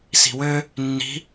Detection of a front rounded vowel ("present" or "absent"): present